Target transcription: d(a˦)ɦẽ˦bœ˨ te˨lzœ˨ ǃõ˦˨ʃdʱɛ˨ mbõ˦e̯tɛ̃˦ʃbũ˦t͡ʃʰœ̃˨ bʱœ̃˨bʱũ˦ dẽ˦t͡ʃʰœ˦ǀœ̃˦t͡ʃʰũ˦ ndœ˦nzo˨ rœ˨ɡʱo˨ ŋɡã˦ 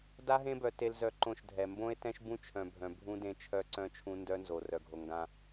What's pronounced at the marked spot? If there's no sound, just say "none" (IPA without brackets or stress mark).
a˦